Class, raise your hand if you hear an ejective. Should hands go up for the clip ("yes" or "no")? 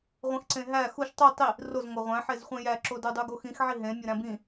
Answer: no